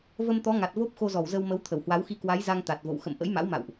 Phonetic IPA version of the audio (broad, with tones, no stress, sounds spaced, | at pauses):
v ə˧ m t̪ ɔ˨˦ ŋ a˨˩ t̚ v o˦˥ p̚ x o˧ z ɔ˧˩ w z ə˧ w m ə˨˦ w t̪ʰ ə˧˩ w h w a˨˦ w x i˧ k w a˨˦ j z a˧ ŋ t̪ a˨˩ t̚ v o̰˧˨ w x ə̰˧˨ m ʔ ə̰˧˥ j m a̰˧˥ w m a̰˧˨ w ʔ